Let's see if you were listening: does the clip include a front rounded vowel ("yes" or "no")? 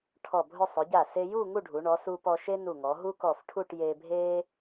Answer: no